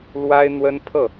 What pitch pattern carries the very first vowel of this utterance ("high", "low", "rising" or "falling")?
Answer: high